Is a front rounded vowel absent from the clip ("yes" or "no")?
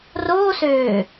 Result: no